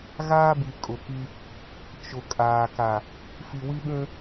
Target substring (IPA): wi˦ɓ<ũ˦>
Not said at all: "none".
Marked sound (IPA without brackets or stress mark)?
ũ˦